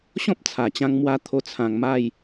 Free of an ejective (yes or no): yes